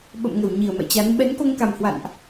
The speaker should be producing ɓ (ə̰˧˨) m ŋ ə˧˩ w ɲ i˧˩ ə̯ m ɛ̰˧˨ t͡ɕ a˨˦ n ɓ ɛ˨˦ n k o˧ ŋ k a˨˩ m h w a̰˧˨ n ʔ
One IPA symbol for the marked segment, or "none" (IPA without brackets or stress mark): ə̰˧˨